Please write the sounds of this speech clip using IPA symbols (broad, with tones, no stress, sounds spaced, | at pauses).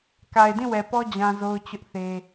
k a˨ ɪ̯ d ĩ˦˨ w ɛ˨ p ɔ˦ d͡ʑ ã˦ z o˦ ʊ̯ t͡ɕ ʊ˦ ʔ θ e˦